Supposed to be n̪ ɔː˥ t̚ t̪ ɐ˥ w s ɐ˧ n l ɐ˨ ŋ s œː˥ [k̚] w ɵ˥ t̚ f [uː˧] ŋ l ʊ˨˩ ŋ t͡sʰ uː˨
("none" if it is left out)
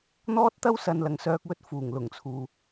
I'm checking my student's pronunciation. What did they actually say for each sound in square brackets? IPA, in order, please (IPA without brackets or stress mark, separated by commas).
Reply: k̚, uː˨˩